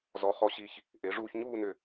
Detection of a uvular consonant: present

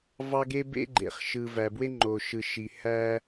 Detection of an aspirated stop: absent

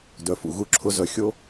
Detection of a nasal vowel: absent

